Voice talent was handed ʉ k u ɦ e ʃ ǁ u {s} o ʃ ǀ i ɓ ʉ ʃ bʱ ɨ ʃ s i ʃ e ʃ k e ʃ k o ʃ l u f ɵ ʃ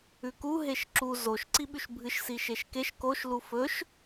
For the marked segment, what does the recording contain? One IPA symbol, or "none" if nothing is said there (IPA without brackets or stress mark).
z